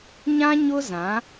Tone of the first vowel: high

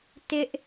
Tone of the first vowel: high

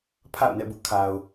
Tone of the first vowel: falling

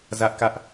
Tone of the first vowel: high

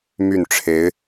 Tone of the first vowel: falling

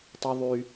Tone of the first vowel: high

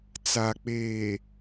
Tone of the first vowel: low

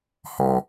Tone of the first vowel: low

